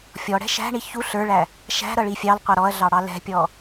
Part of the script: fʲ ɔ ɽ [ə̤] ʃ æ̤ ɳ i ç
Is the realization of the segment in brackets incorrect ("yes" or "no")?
yes